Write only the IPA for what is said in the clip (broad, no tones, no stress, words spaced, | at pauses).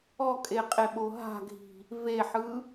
ɔkʼeqʼeɓo ɦa̤ɡʱi̤ | veħɯ